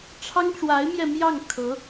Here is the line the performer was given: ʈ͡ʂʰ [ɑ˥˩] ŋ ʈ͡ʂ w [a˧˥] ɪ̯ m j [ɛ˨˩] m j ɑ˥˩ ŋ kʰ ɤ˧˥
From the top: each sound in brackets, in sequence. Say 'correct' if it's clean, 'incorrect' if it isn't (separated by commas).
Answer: incorrect, correct, incorrect